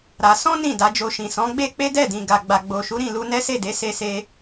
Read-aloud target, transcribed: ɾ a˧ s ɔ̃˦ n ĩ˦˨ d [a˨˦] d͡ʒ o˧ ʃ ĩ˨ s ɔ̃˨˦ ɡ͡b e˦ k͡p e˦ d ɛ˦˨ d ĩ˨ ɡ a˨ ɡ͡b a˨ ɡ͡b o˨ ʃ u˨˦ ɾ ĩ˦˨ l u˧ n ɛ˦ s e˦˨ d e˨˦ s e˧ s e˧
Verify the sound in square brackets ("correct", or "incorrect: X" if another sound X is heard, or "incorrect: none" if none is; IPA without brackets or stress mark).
correct